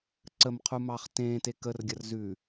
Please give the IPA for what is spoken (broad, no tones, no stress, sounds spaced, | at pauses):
ǀ ə m qʰ u m ɑː χ t ẽː t e k ə r ɡʲ ɐ r z ʉ